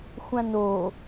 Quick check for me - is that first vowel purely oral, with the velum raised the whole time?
no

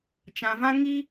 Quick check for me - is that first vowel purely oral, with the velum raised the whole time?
no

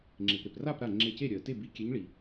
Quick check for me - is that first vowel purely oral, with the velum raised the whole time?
yes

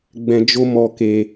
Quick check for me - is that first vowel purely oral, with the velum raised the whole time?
no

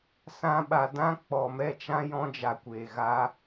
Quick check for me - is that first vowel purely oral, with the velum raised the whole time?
no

